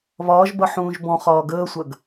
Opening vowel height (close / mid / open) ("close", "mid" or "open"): open